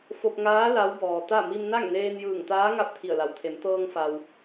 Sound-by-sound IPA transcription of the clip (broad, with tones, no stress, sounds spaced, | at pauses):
f o˧ p̚ ŋ aː˧˥ l a˧˥ w b ɔː˩ t̪ a˥˨ m i˧ m n a˥˨ ŋ n eː˧ n j ɯː˧˩ ŋ t̪ aː˧˥ ŋ a˧ p̚ t̪ʰ i˧˩ ə̯ l a˩˧ w t̪ʰ e˩˧ m t̪ ɤː˧ ŋ f a˩ w